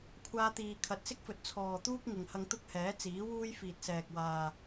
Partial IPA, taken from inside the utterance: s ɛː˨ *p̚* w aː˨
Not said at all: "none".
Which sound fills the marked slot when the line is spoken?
k̚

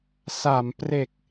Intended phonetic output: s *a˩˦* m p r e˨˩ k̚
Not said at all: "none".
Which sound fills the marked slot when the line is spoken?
a˩˦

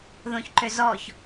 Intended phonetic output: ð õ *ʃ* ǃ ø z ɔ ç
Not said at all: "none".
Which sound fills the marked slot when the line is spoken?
ç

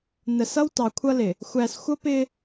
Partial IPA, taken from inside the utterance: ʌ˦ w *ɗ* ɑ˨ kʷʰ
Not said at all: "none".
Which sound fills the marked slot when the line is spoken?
t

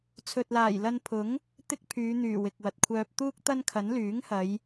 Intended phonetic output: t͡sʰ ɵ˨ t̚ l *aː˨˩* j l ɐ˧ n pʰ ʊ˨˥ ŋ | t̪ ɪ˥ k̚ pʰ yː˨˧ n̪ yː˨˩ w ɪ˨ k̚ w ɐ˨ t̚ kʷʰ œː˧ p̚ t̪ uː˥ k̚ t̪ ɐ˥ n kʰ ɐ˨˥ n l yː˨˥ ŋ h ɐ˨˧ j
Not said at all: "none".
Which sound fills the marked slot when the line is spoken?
aː˨˩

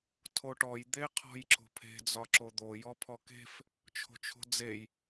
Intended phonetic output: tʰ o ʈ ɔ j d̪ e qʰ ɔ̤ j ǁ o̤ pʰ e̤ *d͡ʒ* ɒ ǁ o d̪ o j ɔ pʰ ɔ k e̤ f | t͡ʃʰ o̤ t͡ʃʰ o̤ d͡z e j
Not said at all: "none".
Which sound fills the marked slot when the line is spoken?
d͡z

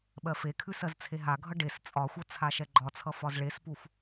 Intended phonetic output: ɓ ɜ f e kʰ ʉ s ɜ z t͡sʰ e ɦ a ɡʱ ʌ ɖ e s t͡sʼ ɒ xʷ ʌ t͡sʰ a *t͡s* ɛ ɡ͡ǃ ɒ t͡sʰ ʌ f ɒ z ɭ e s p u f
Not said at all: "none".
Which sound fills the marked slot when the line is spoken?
ʃ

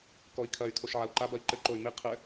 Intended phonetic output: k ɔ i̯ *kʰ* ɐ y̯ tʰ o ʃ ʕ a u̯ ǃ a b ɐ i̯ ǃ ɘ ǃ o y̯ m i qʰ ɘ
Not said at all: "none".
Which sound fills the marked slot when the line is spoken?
kʰ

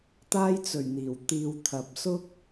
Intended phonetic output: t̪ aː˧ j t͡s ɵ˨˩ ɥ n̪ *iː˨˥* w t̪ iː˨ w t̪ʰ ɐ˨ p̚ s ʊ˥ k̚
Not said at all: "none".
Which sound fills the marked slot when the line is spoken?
iː˨˩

